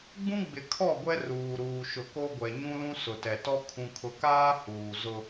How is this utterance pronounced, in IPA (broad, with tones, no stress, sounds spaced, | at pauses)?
ɡ͡b ũ˦ ɡ͡b ɪ˨ kʰ ɔ˦˨ ɡʷ ɛ˦ r uː˨ ɾ uː˨ ʃ ʊ˨ k o˦ ɡʷ ɛ˨ ɲ ũ˦ l ũ˦ s ʊ˨ t ɛ˨ t ɔ˦ kʰ ũ˨ kʰ ʊ˨ k aː˦ h uː˨ z ʊ˦